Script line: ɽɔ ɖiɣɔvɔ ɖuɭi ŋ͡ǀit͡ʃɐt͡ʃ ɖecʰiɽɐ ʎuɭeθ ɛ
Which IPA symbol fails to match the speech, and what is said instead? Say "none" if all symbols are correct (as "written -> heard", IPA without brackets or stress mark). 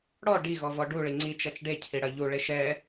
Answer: θ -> ʃ